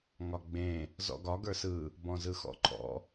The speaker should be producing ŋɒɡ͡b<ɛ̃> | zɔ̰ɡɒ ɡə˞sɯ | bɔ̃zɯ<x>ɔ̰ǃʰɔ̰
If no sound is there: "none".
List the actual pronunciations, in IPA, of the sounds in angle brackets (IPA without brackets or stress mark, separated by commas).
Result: ẽ, x